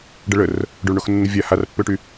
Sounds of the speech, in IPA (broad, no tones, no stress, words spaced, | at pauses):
ɖəɭər | ɖoɭɳoxnːəvʲa harpːøʈy